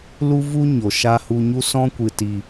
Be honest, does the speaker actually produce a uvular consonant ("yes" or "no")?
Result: no